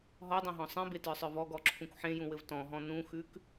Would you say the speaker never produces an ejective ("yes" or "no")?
yes